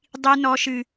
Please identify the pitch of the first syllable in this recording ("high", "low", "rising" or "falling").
high